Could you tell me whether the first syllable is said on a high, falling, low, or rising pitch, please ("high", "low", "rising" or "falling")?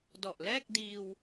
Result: low